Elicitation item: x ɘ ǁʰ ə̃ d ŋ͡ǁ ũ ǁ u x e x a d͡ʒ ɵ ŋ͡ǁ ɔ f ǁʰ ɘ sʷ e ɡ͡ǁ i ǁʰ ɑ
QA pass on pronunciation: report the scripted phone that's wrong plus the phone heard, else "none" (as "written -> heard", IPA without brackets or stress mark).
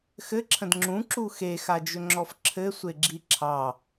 none